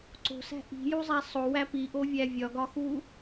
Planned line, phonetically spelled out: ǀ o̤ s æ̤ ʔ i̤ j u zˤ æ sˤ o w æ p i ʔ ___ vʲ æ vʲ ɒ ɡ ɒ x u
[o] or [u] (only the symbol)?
o